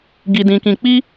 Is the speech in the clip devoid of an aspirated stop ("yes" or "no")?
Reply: yes